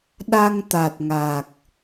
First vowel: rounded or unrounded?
unrounded